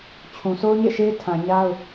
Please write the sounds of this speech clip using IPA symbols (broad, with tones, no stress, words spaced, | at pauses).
t͡ɕʰũ˨so˦ʊ̯ɲḛ˦˨ʃe˦ɪ̯ tʰã˨ ɲa˦ʊ̯